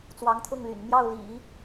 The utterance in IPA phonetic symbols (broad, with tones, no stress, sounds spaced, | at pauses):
t͡s w ɑ˧˥ ŋ t̪ʰ ʊ˥˩ ŋ l y̰˨˩ n m j ɑ˥˩ ʊ̯ l ḭ˨˩˦